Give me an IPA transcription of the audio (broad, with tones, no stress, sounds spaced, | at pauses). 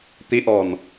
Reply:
t̪ i˨˦ ʔ ɔ˨˩ n